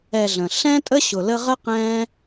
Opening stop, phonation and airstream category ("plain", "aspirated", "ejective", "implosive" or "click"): ejective